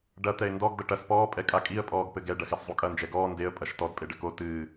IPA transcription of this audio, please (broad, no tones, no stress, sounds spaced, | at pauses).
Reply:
ɖ ɐ t̪ ɛ ɪ̯ n d ɔ ɡ d ɐ ʈ ɐ s p ɔː pʼ ɛ kʼ a kʼ i ə̯ pʼ ɔː ɡ p ɘ ɡ ɛ ɖ ɐ x ɛ s zˤ u kʼ ɐ n d͡ʒ ɛ ɡ ɔː n d e ə̯ pʼ ɐ ʃ t ɔ d pʼ e ɖ ɘ k o t ɨː